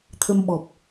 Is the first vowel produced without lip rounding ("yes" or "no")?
yes